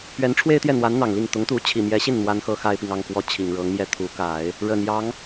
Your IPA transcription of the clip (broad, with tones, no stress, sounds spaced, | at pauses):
p ɥ ɛ˧˥ n ʈ͡ʂʰ w e˥ ɪ̯ t̪ j ɛ˥˩ n̪ w a˧˥ n n̪ ɑ˨˩ ŋ l i˥˩ ŋ t̪ ʊ˧˥ ŋ t̪ u˧˥ t͡ɕʰ i˨˩ m j ɛ˧˥ ɕ i˥˩ n n̪ w a˥ n x ɤ˥ x a˥ ɪ̯ p i˨ ŋ ɑ˥˩ ŋ k w ɔ˧˥ t͡ɕʰ i˨˩ ŋ ɻ ɤ˧˥ ŋ m j ɛ˥˩ t̪ʰ u˧˥ k a˨˩˦ ɪ̯ | ɻ ə˨˩ n j ɑ˧˥ ŋ